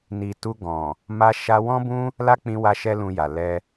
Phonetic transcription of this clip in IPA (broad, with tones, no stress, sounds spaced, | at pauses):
n i˨ t u˧ ɡ ɔ̃˨ | m a˧ ʃ a˧ w ɔ̃˦ b ũ˦ | l a˦ k͡p ĩ˧ w a˧ ʃ ɛ˦ l ũ˧ j a˨ l ɛ˧